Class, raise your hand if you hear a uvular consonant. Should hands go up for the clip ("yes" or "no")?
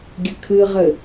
yes